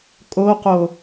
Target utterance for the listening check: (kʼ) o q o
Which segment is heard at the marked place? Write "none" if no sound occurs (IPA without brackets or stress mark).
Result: kʼ